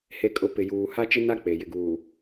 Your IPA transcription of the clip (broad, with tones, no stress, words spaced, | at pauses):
he˨kʼʊ˨ pɪ˨juː˨ ha˦t͡ʃɪ˦na˦ k͡pe˨ jɪ˨ɡuː˨